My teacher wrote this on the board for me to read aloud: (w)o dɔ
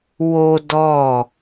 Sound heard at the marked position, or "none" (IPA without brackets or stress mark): w